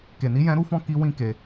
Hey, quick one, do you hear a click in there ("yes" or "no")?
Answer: no